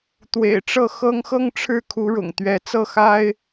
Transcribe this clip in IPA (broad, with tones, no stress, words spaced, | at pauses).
t̪wḛ˨˩ɪ̯ʈ͡ʂɤ˥˩xɤ˥ŋ xɤ˥˧ŋʈ͡ʂʰɻ̩˥˩ kʰu˧˥ɻʊ̰˨˩ŋ t̪ɥɛ˧˥ t͡sɤ˥˩xa˥ɪ̯